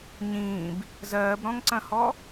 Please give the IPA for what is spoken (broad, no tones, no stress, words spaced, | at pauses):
ɲĩːb | zɜːbɾɔ̃ŋǀɐ̃hɔ